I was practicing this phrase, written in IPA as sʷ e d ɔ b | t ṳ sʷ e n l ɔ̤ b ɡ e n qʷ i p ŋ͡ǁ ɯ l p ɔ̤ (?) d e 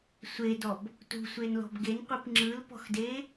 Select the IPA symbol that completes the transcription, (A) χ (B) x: B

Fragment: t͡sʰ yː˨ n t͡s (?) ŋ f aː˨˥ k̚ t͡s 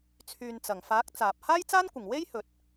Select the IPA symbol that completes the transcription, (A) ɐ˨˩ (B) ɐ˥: A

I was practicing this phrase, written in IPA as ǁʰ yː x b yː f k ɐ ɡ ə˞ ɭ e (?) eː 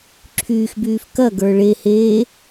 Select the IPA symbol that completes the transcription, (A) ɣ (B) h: B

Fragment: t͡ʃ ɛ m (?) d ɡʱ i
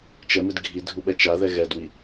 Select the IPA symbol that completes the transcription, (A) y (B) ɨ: B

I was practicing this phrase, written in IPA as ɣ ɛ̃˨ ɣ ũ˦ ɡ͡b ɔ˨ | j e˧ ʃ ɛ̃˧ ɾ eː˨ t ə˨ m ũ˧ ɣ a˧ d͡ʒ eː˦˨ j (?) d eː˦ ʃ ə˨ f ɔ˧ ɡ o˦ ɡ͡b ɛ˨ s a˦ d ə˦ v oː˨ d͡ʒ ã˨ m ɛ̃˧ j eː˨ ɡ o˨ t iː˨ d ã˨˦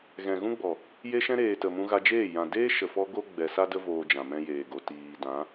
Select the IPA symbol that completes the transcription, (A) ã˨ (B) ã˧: A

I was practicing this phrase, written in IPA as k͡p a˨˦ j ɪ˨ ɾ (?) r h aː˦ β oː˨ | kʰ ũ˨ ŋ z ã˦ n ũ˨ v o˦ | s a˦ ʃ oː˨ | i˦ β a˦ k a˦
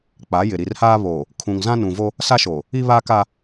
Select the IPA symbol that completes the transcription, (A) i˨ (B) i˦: A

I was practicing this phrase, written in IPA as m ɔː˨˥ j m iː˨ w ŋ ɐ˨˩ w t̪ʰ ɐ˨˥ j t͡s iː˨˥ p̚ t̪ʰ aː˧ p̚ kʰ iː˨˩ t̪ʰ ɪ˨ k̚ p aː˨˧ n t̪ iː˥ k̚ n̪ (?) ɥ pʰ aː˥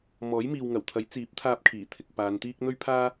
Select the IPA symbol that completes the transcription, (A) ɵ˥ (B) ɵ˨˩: A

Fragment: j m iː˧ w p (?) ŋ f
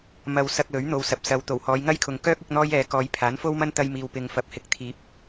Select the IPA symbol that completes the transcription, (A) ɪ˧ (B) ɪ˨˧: A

